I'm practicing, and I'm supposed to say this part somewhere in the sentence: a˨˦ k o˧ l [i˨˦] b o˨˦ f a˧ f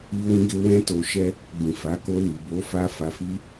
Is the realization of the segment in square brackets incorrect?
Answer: yes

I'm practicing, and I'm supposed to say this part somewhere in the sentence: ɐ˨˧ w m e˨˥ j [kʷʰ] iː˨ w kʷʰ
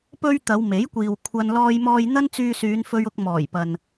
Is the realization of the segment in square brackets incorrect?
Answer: yes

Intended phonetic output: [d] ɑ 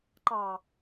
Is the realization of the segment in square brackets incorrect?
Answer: yes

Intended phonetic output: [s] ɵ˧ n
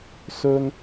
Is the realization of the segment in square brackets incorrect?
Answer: no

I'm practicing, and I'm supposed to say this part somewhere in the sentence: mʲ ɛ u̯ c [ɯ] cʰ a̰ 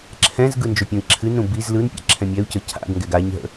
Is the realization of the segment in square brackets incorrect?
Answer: yes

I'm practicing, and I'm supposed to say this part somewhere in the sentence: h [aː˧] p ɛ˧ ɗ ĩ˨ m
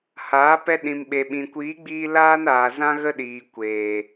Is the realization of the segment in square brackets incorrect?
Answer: yes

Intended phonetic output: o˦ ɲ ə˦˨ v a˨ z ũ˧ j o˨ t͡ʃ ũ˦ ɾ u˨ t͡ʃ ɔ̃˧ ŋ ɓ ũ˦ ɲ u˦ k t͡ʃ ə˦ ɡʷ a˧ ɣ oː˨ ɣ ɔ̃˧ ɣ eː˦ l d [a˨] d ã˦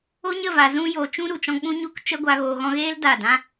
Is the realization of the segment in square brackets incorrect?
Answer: yes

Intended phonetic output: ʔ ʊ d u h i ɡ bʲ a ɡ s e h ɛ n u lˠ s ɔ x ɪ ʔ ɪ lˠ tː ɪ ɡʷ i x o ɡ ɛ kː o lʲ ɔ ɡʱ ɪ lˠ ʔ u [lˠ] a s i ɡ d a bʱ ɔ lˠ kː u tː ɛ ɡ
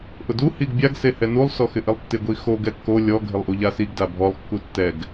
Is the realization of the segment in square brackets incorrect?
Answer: yes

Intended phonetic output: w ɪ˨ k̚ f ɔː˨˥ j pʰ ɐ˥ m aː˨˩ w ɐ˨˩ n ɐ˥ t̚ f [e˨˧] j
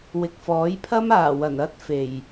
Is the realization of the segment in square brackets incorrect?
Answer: yes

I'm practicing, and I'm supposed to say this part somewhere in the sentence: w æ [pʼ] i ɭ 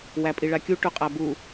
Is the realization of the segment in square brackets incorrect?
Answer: no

